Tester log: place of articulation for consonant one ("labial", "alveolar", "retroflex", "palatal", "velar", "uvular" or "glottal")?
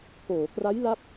velar